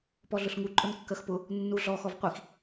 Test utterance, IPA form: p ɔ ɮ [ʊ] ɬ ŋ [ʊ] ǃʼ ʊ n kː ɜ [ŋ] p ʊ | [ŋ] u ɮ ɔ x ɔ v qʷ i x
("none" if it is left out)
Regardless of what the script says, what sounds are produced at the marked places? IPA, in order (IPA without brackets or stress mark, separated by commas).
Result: ʊ, u, x, nː